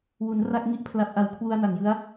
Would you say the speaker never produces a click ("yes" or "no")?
yes